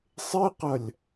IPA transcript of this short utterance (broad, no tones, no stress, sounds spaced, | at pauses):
sˤ e q ɐ lʲ